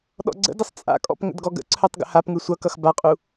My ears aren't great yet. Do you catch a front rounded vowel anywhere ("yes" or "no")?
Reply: yes